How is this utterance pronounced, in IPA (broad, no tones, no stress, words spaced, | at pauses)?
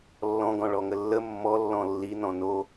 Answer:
lːɔ̃ɡɔ̃ ɭɔŋəlːə mːɔlːɔ̃ lːinɔ̃ no